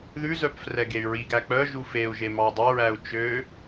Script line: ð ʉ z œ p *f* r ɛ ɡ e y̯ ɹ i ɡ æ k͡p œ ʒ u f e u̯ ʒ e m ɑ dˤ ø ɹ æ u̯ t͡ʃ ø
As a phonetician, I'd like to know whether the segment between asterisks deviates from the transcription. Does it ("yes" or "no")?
no